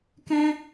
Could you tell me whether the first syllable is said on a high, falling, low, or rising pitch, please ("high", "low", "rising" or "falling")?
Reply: high